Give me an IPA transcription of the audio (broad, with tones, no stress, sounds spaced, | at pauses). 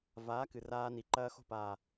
v aː˨˦ k ɨ˨ r aː˦ n i˨ ǃ ɐː˦ x o̤˦ p aː˨